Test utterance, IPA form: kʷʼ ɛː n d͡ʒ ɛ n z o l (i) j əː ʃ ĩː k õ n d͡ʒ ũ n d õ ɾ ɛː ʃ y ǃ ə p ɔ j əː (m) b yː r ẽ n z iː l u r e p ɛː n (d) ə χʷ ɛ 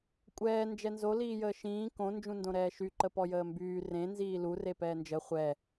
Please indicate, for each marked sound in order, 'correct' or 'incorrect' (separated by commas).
incorrect, correct, incorrect